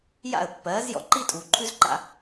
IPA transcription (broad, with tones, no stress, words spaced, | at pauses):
ja̰˥˩ə̯pːɜː˩˥zjɔ̰˧ ǃi˥ tʼuː˩ǃʰʉ˥zǃa̰˧